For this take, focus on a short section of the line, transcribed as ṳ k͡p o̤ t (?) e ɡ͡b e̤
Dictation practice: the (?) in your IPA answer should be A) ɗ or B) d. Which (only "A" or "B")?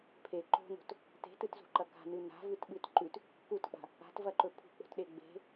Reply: A